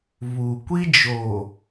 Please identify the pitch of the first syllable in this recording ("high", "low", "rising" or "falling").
low